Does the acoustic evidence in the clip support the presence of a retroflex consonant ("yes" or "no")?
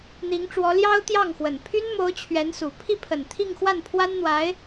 yes